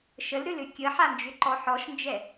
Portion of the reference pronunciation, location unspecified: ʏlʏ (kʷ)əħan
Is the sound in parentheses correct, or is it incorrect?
incorrect